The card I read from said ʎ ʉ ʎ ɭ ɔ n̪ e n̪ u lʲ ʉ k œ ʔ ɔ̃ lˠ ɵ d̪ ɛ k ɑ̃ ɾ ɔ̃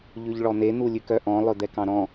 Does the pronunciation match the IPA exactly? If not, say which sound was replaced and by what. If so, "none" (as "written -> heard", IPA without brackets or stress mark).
none